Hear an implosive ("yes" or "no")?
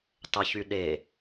yes